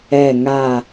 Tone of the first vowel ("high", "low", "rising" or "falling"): falling